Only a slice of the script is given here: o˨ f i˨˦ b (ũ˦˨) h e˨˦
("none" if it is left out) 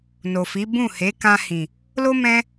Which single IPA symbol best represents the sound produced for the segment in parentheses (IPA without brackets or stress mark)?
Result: ũ˦˨